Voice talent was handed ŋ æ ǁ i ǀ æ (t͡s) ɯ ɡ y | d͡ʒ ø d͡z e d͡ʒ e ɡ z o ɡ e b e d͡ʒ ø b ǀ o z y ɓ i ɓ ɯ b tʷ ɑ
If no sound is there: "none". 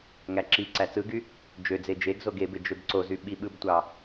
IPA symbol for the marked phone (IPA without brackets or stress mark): t͡s